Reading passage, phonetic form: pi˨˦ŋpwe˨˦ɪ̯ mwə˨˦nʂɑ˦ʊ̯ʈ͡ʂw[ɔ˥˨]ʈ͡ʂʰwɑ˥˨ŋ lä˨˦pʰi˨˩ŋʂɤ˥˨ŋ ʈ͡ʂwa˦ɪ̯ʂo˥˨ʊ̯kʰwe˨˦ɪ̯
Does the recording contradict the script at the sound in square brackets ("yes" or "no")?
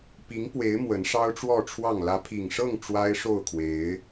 no